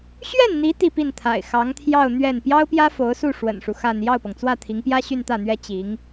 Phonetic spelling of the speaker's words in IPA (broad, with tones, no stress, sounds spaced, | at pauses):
ɕ ɥ ɛ˥˩ n n̪ i˧˥ t̪ i˥˧ p i˥˩ n t̪ʰ a̰˨˩ ɪ̯ x ɑ˧˥ ŋ t̪ʰ j ɑ˥˧ ʊ̯ n̪ ɥ ɛ˥˩ n p j ɑ˥ ʊ̯ p j ä˥ f o˧˥ ʊ̯ s u˥˩ ʂ w ə̰˨˩ n ʂ u˦ x a˥˧ n j ɑ˥˩ ʊ̯ p ɤ˩ ŋ t͡s w ä˥˩ t̪ʰ i˧˥ ŋ p j ä˥ ɕ y˥˧ n t̪ ä˥˩ n̪ ɥ ɛ˥ t͡ɕ i˧˥ ŋ